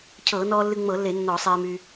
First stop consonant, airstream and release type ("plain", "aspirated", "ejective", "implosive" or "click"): aspirated